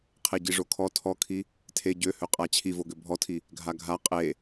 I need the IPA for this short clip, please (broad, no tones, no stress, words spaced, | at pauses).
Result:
qʰeɟiʐokʰɔ tʰɔkʰi | tʰe ɟøhøqʼa t͡ɕʰivoɡø bʱɔtʰi | ɡʱaɡʱa qʼe